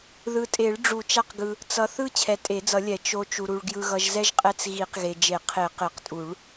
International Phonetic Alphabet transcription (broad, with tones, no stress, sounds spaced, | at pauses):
ð ɯ˨ tʼ e˨˩˦ ɭ ɖ͡ʐ u˨˩˦ t͡ʃ a˦ q ɡ ɯ˨ | t͡s ʌ˨ θ ɯ˦ t͡ɕʰ ɛ˨ tʼ e˨˩˦ d͡z ʌ˨˩˦ lʲ ɛ˨˩˦ t͡ʃ o˨ t͡ʃ u˨ ɾ u˨ ɭ ɡ j ɯ˨ ɣ ʌ˨ ʒ z ɛ˦ ʒ qʼ ɛ˦ t͡s ɣ i˨˩˦ q ɣ e˨ d͡ʒ e˨˩˦ qʰ e˨˩˦ q e˨˩˦ q tʼ u˨˩˦ ɭ